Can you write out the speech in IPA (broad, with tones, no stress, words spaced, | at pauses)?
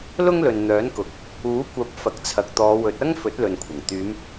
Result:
lʊ˥ŋlɵ˨nn̪œː˨˥nkʊ˨˥k̚ | uː˨˥kʷɐ˨˥p̚ fɐ˨k̚t͡sʰɐ˨k̚t̪ɔː˨˧ wɵ˨˥t̚ ɐ˥ŋ fɵ˨˥t̚lɵ˨nkʷʰɐ˨˩ŋ t̪yː˨˧m